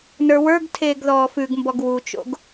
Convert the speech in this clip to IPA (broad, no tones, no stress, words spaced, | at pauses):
nə˞wə˞ɡtʰeːɡ ðɔːfʉɡmbɔɡ wut͡ʃo̰ɡ